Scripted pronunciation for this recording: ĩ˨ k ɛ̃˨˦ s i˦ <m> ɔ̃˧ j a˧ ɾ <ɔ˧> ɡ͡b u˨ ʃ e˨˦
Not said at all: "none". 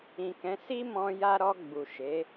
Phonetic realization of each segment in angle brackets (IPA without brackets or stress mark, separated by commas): m, ɔ˧